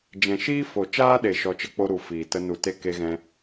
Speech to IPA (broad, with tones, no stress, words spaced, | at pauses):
d͡ʒɛ̃˨ʃiː˦ fo˨t͡ʃaː˦ɗe˨ ʃɔ˧t͡ʃə˦ k͡po˦ɾu˨˦ fiː˨ tə˧nu˨te˦ ke˧ɣɛ̃˧